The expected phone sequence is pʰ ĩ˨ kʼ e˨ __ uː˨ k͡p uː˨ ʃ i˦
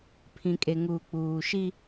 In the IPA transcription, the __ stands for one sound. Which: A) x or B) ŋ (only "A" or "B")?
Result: B